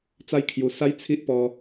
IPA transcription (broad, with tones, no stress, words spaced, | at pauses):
t͡sa˥˧jkʰju˧ sa˦j t͡sʰi˦ʔpɔ˧